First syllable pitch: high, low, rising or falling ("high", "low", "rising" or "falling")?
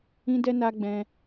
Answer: high